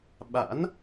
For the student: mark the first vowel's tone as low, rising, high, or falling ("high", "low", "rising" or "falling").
rising